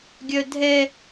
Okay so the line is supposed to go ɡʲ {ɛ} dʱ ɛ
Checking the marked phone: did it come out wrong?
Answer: yes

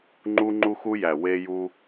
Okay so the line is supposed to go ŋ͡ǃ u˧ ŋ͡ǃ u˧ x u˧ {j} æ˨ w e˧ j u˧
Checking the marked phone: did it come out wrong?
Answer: no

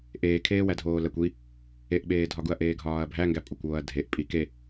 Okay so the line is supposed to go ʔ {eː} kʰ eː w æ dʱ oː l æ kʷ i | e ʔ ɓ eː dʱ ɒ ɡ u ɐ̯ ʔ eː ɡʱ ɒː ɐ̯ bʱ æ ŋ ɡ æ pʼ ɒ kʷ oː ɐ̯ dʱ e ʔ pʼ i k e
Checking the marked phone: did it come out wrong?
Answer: no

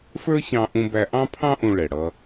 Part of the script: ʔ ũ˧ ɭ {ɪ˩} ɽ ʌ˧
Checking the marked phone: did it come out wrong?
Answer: yes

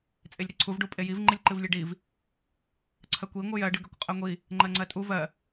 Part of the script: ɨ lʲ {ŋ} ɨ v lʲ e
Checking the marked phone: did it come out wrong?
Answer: yes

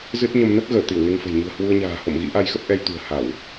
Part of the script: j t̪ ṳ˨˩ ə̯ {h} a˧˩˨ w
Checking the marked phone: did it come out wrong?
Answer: no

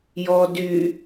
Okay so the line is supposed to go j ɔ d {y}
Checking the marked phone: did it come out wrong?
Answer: no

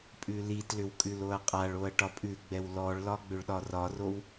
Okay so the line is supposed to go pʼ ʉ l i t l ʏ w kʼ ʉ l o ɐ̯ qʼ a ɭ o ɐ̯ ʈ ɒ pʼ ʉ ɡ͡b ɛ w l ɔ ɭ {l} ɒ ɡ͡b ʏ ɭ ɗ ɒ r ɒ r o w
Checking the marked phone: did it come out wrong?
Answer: no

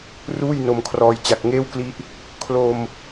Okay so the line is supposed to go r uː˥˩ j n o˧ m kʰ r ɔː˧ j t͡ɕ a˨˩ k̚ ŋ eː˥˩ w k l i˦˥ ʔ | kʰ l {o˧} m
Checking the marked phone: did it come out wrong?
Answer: no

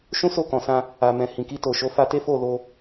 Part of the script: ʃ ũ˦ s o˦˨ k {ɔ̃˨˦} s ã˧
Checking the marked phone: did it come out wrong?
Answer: yes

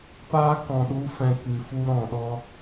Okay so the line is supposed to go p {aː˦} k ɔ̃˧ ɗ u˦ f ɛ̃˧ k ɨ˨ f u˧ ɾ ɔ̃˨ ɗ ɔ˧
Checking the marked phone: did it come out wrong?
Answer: no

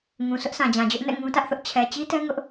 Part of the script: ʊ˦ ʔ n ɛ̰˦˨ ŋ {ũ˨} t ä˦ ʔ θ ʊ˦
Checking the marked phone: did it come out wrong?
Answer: yes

